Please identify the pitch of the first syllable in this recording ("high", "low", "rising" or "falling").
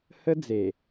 high